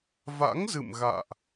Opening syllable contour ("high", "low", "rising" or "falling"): rising